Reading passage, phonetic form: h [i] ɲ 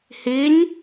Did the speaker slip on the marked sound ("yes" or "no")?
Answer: no